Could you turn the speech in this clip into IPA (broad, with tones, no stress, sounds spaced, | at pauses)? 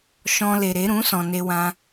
ʃ ɔ̃˧ l e˨ ɾ e˨˦ ɾ ũ˨˦ s ɔ̃˨ n e˧ w ã˧